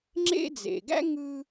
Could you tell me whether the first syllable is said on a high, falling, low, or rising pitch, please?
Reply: high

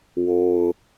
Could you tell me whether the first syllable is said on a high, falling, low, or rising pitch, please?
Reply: low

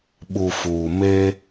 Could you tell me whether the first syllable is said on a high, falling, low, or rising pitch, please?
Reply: low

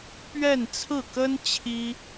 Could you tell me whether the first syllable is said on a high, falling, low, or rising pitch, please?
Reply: falling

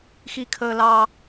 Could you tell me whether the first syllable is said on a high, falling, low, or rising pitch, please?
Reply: high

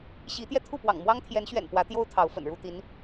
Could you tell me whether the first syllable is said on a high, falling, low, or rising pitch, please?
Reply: rising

